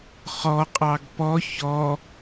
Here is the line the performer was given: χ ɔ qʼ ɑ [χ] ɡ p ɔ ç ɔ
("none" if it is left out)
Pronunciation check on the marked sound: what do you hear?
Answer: none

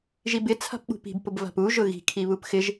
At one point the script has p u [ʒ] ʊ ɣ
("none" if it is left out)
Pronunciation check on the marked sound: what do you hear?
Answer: ʒ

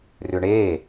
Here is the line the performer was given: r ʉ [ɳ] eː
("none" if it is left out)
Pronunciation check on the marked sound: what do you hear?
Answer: ɳ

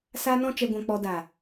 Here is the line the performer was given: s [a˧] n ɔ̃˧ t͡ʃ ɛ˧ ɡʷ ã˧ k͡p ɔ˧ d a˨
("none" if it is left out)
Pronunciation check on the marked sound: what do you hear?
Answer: a˧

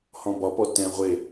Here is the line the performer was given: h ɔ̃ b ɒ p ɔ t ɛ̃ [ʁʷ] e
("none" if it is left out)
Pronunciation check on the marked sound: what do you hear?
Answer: ʁʷ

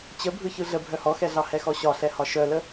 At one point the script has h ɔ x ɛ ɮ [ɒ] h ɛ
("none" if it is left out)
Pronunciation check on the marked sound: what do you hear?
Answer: ɑ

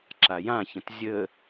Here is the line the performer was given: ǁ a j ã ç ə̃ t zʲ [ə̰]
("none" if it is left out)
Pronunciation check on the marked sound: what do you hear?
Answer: ə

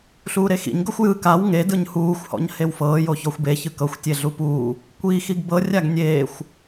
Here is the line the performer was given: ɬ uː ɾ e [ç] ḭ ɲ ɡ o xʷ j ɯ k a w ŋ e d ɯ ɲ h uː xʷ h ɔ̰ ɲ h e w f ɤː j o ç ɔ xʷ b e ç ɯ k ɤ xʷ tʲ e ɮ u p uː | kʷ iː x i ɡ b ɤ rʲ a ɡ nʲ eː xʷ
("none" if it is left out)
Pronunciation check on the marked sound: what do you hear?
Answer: x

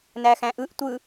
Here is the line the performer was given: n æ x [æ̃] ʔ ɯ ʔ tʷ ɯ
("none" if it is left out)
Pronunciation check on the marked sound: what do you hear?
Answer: æ̃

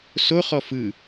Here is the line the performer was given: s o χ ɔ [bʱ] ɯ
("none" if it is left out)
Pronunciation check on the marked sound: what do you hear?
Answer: f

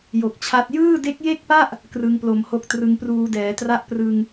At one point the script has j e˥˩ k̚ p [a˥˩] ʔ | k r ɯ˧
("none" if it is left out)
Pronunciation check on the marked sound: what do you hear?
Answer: a˥˩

